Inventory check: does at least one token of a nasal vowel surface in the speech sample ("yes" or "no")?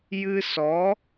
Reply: no